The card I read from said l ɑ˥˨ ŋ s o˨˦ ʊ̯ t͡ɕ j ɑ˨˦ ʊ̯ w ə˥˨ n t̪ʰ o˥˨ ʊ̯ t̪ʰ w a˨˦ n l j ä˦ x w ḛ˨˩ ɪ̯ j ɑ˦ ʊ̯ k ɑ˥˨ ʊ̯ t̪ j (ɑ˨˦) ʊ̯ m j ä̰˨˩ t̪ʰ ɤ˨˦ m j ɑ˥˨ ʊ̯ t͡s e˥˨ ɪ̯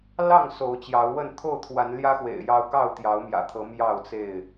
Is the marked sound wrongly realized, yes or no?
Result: no